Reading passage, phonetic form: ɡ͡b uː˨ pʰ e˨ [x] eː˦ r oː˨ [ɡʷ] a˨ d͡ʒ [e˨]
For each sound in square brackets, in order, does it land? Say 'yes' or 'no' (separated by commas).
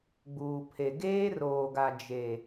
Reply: no, no, yes